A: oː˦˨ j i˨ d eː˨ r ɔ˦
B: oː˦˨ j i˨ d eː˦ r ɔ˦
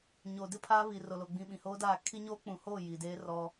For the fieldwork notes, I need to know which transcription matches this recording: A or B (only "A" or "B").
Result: B